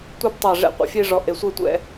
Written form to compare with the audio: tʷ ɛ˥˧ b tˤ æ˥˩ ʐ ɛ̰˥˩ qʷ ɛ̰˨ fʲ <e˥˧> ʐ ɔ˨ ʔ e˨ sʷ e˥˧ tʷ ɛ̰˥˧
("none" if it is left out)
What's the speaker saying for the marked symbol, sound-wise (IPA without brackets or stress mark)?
e˥˧